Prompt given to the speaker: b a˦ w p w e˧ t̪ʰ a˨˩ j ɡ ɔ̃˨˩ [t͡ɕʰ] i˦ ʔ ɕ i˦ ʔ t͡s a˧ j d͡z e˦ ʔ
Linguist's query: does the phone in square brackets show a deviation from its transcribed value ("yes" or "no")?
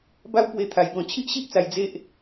no